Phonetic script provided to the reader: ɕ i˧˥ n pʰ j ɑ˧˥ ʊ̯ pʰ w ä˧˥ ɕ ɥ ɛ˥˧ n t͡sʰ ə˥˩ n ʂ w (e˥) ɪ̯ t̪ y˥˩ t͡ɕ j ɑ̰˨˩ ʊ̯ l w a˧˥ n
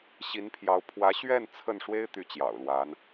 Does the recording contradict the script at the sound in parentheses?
no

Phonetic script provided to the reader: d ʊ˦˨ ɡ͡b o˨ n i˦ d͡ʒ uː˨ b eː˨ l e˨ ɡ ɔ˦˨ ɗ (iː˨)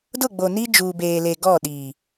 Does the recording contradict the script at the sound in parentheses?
no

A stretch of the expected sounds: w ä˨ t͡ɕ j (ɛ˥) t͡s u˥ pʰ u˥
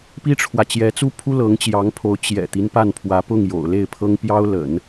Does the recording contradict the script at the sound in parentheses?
yes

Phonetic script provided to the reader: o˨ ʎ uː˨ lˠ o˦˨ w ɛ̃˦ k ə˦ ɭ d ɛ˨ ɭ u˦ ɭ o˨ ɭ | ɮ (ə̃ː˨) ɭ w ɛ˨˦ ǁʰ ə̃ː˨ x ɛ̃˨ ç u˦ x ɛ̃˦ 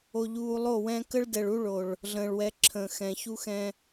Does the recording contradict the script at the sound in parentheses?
no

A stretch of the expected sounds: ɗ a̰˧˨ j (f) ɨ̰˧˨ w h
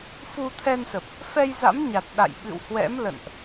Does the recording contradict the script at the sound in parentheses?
yes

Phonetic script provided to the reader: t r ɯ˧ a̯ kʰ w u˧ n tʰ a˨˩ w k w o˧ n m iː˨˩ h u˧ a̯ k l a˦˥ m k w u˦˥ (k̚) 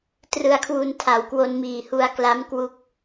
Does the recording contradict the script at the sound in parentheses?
no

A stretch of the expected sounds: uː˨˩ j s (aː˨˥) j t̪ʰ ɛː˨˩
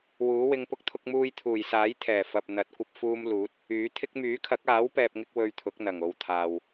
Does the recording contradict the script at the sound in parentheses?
no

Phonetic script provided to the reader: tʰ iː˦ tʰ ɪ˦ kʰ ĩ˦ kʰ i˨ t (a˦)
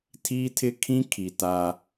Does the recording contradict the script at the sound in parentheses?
no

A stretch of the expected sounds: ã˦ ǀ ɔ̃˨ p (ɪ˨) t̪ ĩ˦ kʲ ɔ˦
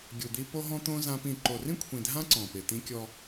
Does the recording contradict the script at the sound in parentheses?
no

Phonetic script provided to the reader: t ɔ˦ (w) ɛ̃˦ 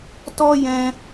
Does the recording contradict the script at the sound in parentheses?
yes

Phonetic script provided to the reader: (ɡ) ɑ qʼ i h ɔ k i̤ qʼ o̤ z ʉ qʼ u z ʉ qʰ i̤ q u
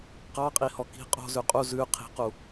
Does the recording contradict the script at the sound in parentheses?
yes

